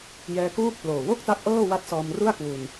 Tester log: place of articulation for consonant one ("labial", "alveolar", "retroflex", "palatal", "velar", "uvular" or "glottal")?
palatal